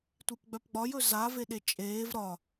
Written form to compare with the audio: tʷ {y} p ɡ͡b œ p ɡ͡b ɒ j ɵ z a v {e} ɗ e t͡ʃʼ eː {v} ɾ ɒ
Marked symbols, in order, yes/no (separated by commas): no, yes, yes